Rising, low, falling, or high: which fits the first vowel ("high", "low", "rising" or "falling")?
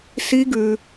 rising